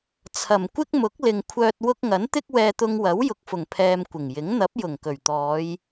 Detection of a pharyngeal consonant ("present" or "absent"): absent